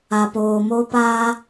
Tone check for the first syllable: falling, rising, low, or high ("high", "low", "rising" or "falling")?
low